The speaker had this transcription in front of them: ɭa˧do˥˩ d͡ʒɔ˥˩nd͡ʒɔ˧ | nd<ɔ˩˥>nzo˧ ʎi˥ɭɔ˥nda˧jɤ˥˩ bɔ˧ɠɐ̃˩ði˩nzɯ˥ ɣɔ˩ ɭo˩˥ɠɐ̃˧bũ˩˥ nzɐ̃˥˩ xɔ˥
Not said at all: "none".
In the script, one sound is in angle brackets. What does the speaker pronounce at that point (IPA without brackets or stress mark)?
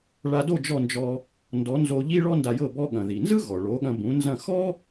ɔ˩˥